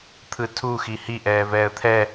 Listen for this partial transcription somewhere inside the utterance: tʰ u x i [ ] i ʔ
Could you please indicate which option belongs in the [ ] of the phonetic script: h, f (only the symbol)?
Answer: h